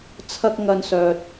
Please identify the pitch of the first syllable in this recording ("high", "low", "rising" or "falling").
high